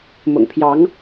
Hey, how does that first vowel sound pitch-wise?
low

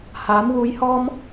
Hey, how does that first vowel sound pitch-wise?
rising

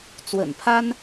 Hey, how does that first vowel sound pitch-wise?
low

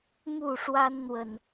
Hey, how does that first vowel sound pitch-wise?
falling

